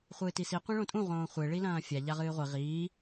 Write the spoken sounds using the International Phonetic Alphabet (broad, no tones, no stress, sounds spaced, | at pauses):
χʷ ɨː t i s i qʷ ẽ ɭ õ tʼ ũ ʁ õː χʷ e ɭ i l ɐ̃ː fʲ a ʎ a ʁ ɨː ʁʷ i ʁ iː